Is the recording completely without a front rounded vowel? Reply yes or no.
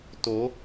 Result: yes